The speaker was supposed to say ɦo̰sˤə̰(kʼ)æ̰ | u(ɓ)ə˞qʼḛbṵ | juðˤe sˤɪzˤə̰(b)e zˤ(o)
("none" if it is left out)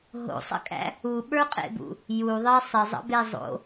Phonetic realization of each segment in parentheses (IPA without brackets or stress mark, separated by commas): kʼ, ɓ, b, o̰